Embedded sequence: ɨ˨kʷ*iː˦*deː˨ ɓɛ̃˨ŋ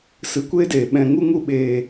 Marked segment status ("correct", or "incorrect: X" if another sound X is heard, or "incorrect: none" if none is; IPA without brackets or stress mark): incorrect: eː˦